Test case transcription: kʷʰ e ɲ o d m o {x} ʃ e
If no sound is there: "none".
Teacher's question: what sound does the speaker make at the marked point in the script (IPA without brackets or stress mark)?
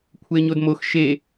x